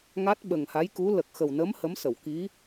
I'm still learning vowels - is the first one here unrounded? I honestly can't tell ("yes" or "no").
yes